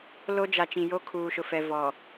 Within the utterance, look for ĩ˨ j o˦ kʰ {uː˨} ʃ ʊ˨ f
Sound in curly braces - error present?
no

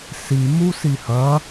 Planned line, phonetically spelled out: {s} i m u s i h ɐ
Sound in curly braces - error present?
no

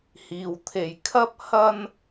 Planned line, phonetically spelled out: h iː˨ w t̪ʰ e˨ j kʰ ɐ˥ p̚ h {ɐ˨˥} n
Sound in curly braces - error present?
yes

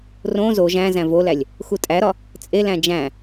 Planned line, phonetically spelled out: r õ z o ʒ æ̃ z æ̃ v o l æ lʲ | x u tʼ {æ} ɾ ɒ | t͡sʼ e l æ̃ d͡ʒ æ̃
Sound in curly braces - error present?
no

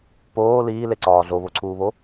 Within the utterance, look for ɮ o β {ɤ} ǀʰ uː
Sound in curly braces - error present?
yes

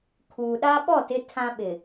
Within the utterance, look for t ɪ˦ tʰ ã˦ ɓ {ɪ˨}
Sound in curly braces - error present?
no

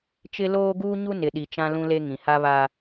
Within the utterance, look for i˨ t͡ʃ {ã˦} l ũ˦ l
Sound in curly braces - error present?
no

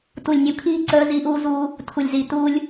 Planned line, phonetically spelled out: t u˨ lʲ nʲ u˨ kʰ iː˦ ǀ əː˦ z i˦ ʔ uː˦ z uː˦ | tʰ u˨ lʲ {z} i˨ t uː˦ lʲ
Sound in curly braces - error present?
no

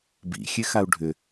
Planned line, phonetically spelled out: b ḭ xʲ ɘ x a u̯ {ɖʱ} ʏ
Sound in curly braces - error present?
no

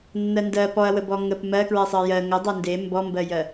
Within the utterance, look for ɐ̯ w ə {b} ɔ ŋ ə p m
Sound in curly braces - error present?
no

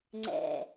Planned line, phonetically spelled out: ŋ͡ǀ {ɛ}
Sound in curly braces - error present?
yes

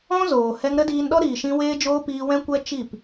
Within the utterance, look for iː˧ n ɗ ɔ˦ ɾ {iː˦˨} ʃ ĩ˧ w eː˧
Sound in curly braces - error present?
yes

